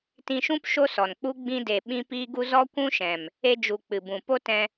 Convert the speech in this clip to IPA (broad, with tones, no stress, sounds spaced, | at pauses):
t ĩ˧ ʃ ũ˦ p ʃ o˦ s ɔ˨ n k͡p u˦ ɡ͡b ĩ˧ d e˨ ɓ ĩ˦ p iː˦ ɡ u˦ z ɔ˦ kʷ ũ˦ ʃ ɛ̃˨ m | e˧ d͡ʒ u˨ k͡p ɨ˨ b ũ˨ p o˦ t ɛ̃˧